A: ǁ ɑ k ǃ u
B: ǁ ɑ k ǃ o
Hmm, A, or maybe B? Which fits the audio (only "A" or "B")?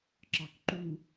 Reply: A